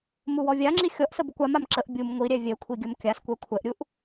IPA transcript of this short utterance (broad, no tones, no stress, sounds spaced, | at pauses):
m u w ɔ vʲ a ŋ͡ǁ i xʲ ɔ ʔ s ə b u kʷ a m a m ǁ ə ʔ bʲ u m ŋʷ i ɾʲ ɛ vʲ ɛ kʷʰ i ɡʲ ə m kʲ a s kʷ ɛ kʷʰ ɛ ʔ ɾʲ u ʔ